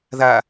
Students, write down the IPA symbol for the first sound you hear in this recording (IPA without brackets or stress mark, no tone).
ð